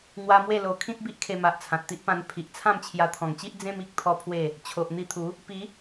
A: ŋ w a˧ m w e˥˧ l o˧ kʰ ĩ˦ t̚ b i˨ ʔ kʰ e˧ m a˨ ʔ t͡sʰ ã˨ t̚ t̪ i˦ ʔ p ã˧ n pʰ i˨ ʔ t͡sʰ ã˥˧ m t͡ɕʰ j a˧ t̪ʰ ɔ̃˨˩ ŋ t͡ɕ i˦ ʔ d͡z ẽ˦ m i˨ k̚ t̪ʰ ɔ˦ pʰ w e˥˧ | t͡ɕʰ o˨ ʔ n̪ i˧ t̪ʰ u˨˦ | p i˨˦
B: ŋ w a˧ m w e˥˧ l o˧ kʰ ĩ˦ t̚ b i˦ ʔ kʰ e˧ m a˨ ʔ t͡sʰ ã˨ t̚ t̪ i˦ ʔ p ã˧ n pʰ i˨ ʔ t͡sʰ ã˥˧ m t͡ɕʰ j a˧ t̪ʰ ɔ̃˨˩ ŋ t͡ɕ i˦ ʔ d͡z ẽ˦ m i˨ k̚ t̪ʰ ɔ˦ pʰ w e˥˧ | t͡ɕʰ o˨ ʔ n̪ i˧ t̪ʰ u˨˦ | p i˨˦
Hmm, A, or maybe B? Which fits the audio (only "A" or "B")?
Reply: B